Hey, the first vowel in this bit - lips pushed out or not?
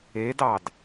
no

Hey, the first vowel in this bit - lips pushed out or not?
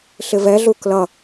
no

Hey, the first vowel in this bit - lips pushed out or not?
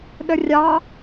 no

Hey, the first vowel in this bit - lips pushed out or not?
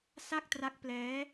no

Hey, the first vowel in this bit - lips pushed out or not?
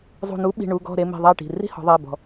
yes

